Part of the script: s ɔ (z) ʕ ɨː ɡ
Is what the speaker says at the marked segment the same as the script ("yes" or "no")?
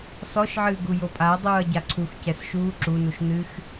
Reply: no